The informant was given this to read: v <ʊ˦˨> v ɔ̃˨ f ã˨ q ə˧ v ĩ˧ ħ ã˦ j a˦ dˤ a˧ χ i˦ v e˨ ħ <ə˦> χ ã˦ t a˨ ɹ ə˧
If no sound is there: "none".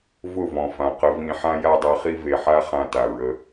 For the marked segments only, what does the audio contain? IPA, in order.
ʊ˦˨, a˦

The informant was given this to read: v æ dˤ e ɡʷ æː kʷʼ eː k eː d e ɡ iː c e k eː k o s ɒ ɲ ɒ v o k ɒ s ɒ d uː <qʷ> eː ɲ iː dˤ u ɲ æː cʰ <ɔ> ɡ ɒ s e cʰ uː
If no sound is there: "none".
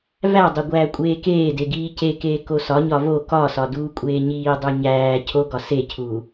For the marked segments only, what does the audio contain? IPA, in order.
kʷʼ, o

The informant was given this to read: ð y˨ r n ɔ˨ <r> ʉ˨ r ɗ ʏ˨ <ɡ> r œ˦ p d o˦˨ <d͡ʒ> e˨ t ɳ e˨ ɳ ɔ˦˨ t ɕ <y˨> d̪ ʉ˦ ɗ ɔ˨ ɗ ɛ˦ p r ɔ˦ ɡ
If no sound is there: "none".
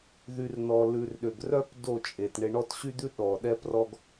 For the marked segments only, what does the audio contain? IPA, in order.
l, ɡ, t͡ʃʼ, y˦

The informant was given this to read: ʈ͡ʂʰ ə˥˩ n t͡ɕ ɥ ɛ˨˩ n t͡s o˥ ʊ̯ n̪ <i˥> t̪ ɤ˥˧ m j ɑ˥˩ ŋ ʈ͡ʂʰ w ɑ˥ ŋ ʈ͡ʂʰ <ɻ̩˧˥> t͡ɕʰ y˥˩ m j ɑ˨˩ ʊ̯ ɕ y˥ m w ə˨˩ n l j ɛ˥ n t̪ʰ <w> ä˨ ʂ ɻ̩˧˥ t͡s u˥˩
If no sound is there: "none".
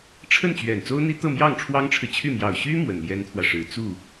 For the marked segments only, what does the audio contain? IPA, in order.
i˥, ɻ̩˨, w

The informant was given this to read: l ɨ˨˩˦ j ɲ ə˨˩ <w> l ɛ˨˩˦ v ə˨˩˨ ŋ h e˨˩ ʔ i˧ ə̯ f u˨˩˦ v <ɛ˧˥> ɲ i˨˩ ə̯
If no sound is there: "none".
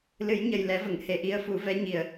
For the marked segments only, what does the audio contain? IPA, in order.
j, ɛ˧˥

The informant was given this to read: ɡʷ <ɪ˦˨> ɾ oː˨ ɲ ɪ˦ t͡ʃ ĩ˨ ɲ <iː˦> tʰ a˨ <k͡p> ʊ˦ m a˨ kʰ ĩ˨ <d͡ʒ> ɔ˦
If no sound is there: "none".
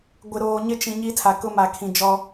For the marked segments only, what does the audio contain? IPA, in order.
ɪ˨, i˦, k, d͡ʒ

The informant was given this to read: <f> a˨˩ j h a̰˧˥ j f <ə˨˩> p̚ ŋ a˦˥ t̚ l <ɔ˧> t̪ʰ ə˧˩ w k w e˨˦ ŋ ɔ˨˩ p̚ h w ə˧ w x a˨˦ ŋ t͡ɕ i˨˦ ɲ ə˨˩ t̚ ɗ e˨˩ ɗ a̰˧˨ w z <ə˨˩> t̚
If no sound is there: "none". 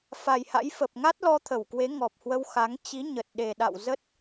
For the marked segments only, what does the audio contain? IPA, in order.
f, ə˨˩, ɔ˧, ə˦˥

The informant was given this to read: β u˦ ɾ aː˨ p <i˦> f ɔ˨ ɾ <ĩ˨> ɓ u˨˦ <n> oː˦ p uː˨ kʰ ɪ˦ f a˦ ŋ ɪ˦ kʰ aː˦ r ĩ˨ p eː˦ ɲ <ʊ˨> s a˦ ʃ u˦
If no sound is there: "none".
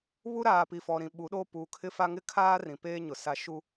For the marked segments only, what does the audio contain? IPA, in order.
i˨, ĩ˨, ɗ, ʊ˨

